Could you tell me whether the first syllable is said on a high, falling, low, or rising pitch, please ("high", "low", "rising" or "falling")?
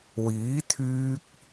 rising